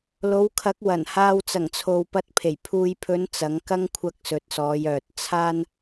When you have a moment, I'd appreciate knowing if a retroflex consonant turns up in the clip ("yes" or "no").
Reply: no